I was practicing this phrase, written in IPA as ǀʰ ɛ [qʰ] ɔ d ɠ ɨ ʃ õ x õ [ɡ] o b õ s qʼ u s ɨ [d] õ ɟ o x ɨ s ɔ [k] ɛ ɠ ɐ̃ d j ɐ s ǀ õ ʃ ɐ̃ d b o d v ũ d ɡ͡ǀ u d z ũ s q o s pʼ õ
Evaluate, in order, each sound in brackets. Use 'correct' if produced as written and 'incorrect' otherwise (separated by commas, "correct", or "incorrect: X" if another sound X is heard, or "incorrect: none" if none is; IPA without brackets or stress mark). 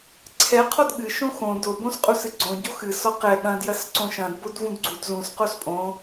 correct, incorrect: d, incorrect: ɡ͡ǀ, incorrect: q